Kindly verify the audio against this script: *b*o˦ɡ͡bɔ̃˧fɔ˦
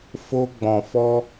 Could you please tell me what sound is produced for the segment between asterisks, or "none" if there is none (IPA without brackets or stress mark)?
f